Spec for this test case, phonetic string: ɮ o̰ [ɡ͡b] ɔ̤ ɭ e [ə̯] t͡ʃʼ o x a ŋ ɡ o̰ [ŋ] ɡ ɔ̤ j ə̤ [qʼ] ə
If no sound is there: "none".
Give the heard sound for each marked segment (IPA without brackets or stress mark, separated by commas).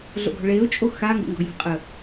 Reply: ɡ, ʊ̯, ŋ, qʼ